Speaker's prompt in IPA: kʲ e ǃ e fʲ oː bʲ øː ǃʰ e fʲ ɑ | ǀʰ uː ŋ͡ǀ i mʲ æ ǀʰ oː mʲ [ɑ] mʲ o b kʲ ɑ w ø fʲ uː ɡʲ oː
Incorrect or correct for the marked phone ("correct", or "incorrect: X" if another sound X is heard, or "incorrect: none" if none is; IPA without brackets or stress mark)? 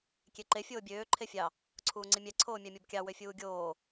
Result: correct